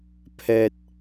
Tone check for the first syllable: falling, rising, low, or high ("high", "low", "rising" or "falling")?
low